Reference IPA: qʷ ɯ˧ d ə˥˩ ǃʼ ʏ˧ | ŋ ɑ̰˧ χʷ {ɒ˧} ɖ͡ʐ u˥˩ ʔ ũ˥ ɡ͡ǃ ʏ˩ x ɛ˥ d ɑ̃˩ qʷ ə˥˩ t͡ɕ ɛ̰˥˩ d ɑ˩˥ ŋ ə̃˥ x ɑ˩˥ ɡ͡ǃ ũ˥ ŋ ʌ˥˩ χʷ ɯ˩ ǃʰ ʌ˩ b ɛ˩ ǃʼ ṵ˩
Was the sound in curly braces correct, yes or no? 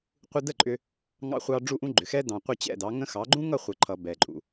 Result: no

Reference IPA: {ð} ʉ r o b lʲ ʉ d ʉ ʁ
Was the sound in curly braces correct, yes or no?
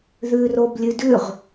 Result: yes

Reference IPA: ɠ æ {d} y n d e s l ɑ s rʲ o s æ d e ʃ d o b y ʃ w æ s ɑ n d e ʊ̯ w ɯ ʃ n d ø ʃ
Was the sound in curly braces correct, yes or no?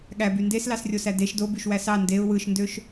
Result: no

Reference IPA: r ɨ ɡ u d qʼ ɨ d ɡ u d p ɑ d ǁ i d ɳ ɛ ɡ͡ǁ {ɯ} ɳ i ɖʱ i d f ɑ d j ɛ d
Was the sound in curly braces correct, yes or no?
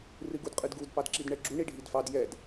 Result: no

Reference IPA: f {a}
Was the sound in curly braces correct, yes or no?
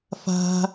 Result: no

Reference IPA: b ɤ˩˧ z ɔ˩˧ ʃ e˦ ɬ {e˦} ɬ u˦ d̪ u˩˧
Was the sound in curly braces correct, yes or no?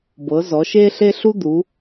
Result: yes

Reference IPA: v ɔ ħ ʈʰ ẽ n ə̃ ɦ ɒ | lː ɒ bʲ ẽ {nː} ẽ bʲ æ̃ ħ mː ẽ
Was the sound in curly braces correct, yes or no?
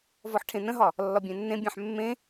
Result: yes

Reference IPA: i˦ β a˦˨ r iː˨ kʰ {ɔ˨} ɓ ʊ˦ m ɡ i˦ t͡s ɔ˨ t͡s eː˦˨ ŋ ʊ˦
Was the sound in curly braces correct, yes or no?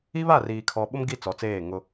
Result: yes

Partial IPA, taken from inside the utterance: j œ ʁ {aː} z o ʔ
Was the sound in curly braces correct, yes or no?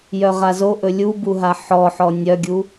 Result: no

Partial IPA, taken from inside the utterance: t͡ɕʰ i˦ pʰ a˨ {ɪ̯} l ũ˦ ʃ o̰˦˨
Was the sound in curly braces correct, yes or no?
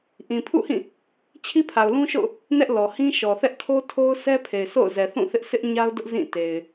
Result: no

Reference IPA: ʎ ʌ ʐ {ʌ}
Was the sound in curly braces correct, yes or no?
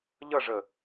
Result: no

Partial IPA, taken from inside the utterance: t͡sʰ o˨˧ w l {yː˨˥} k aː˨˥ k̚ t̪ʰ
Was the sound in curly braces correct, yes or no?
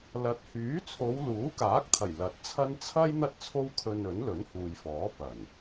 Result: no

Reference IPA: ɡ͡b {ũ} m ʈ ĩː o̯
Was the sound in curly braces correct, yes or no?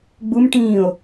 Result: no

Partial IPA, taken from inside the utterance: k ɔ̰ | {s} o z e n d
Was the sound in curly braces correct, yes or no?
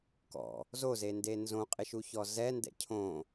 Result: no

